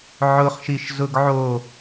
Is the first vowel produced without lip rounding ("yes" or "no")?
no